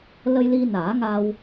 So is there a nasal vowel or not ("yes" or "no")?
no